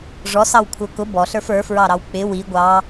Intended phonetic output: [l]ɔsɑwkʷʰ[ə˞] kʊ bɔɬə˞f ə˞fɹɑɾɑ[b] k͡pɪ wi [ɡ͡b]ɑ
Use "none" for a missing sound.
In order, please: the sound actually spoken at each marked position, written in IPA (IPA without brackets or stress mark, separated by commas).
ʐ, ə˞, w, ɡʷ